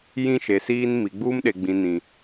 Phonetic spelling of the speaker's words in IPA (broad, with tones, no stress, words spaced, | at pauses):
jĩ˦ʃe˨siː˦n mi˨ɡ͡buː˦mɗe˨ ɡ͡bĩ˨nĩ˨